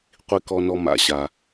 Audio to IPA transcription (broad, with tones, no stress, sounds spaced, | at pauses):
qʷ i˨ k ɔ˨ n ɔ˨ m a̰˨ ɕ a˩